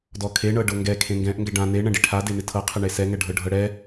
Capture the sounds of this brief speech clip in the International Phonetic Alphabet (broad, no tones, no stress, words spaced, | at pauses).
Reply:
dɔkʰe ɳɤɖɤŋɡɛ kʰẽŋɡɛ̃ʔ ŋɡɛɖã ne ɳɛ̃ɖiʈʰa denɪtʰɤ qʰɛɳesɛ ŋɛɖʱɤɖʱɤɽɛ